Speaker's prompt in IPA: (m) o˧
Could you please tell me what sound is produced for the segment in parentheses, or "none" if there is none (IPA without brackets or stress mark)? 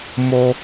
m